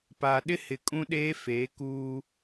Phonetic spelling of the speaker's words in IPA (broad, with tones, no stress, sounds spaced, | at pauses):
p aː˨ ɗ ɪ˦ h ɪ˨ kʼ ũ˦ ɗ eː˦ f eː˨˦ k uː˦